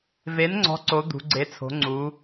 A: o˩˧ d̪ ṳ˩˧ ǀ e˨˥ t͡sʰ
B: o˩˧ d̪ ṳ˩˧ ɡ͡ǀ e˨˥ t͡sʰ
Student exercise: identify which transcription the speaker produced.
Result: B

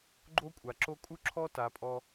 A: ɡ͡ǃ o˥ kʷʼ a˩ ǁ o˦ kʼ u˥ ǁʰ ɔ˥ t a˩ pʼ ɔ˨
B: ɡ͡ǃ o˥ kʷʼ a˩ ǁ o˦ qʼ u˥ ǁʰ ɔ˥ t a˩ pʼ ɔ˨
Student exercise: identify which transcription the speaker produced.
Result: A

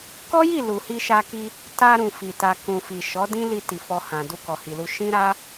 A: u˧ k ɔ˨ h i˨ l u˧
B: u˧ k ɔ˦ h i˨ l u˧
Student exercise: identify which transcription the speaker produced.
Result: A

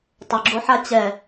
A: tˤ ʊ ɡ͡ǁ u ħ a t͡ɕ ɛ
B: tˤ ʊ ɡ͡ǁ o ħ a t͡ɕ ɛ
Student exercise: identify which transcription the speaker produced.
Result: B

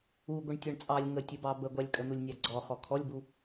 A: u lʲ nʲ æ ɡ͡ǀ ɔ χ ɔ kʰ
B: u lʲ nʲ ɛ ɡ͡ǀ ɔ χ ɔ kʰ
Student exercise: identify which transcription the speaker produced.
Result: A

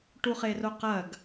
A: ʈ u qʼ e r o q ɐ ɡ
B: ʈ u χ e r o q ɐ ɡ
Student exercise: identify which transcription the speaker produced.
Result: B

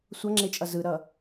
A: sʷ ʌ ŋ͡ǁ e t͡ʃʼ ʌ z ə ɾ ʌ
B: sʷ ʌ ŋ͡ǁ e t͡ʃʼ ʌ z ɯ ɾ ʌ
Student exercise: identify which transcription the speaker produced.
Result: B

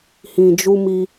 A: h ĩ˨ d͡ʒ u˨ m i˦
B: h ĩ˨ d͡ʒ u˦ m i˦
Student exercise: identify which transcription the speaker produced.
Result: B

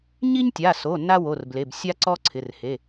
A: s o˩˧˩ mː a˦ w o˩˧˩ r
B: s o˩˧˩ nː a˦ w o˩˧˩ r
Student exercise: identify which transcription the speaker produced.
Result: B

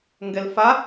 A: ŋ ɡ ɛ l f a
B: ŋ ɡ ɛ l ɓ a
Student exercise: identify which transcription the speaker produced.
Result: A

